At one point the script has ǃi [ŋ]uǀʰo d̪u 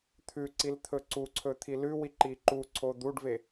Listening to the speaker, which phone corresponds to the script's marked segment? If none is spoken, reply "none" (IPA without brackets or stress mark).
ǃ